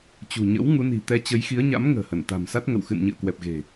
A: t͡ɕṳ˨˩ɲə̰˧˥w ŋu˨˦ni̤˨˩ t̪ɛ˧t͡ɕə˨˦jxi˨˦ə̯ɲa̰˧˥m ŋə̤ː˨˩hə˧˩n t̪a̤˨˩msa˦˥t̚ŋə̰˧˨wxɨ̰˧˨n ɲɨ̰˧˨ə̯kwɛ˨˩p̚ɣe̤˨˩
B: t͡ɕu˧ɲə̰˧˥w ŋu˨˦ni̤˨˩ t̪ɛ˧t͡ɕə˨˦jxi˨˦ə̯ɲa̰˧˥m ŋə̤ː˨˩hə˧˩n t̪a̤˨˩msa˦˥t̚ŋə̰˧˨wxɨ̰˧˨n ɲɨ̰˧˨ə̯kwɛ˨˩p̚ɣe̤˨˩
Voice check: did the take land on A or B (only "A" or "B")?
A